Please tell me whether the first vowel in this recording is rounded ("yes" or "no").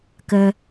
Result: no